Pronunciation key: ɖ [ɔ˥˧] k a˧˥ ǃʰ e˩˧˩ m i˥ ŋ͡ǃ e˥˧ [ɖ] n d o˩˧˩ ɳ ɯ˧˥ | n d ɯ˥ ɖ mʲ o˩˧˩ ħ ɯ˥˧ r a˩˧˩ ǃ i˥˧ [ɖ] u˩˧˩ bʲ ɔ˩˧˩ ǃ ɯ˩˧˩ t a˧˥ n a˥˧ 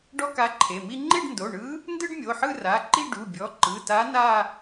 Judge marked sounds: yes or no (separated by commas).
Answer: no, yes, yes